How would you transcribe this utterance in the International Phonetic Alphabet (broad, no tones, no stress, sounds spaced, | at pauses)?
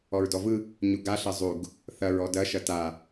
ɔ ɹ d ɔ v ɯ | ɲ u ɡ a ɬ ɐ zˤ u ɡ | θ ɐ ɹ ɔ d ɐ ʃ ɐ t a